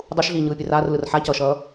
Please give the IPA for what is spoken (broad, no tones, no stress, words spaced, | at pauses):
dˤuʃɮiːɲɯː pʲeraːrlɯr ħacʌːʃʌː